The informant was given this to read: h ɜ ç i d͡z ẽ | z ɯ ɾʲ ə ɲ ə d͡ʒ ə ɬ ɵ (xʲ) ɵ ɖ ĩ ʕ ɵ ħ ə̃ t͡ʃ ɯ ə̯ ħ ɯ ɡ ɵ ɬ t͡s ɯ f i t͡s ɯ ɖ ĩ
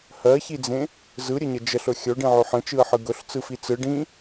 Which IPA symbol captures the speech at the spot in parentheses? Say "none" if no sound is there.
xʲ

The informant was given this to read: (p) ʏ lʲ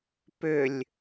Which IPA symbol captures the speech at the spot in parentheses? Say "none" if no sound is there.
p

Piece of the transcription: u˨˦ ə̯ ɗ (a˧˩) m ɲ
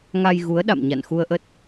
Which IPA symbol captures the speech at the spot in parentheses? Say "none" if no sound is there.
a̰˧˨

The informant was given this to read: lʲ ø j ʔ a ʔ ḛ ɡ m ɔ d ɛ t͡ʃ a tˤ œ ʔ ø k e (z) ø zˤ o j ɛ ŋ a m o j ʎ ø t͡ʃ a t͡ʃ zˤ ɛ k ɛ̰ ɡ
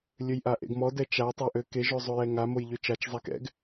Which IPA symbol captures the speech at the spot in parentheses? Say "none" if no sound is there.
ʒ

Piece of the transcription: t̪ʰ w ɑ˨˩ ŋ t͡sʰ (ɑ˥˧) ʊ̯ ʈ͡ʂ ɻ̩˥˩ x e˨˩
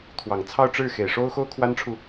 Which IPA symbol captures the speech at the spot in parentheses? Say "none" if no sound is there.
ɑ˥˧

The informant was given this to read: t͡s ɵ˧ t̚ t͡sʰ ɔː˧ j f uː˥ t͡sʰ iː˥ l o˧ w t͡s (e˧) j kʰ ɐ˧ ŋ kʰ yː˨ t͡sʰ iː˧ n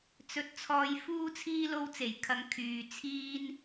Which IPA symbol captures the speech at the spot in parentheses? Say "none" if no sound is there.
e˨˩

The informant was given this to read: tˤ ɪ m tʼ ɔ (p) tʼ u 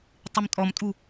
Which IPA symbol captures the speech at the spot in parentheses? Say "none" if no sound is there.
m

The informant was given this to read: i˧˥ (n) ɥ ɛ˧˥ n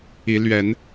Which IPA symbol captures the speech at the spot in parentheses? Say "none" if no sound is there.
l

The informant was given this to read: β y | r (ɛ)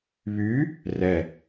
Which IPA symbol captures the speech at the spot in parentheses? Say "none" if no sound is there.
ɛ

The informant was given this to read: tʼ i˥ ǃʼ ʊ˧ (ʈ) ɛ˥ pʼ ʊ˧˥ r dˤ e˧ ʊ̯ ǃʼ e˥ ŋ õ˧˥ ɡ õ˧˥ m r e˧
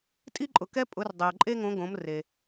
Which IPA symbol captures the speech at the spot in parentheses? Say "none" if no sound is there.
k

